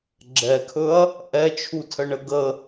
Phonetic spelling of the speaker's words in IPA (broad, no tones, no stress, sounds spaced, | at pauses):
ɡ͡ǁ ɛ kʰ ɵ ɐ̯ | ʔ ɛ t͡ʃʰ u tʰ ə ɳ ə ɡ ə